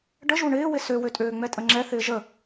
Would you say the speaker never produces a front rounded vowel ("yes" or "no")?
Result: no